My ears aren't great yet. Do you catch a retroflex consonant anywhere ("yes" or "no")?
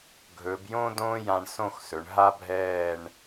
yes